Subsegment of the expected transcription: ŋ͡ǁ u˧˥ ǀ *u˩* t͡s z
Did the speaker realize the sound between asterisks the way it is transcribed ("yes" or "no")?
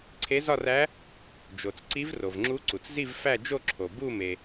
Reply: yes